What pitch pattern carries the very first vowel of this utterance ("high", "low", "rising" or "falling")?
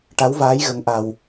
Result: rising